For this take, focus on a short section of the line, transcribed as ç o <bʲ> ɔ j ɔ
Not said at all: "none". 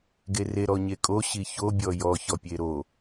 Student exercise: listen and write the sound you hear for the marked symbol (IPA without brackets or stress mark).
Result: bʲ